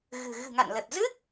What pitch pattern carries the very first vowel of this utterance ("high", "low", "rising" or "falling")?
low